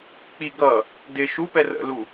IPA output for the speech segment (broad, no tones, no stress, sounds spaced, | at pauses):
k͡p i ɡ ʌ | d ɪ ʃ u p ɛ r ə̰ l u